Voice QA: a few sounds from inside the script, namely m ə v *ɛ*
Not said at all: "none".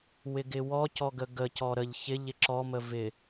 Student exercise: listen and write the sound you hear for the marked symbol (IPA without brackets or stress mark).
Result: ɪ